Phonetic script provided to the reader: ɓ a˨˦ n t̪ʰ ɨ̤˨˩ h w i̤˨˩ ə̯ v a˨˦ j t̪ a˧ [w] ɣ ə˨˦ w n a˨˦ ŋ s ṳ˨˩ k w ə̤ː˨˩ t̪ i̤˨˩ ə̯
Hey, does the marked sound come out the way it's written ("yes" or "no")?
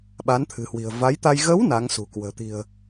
no